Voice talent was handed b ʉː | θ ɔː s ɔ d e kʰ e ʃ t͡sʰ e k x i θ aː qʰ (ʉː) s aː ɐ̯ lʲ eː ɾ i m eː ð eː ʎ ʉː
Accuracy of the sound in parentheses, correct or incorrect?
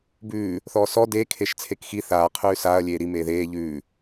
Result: correct